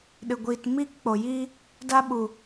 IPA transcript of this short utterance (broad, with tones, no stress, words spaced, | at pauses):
ɗɨ˨ ɡʷiː˨t miː˧kk͡po˨jiː˧ | da˧ɓu˨